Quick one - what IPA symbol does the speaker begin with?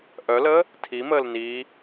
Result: ʔ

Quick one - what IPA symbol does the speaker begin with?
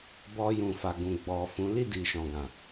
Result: b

